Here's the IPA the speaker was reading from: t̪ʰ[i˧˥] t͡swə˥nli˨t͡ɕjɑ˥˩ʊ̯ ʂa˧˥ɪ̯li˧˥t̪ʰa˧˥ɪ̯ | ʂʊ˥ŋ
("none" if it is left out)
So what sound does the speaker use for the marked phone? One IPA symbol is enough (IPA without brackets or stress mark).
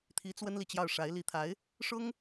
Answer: i˧˥